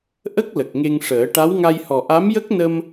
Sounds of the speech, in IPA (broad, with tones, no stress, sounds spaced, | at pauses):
ʔ ə˦˥ k̚ l ə˨˩ k̚ ŋ e˧ ŋ ʂ əː˨˩˦ ʈ a˧˥ w ŋ a˧ j h ɔ˨˩ ʔ a˧˥ m j ə˦˥ k̚ n ə˧ m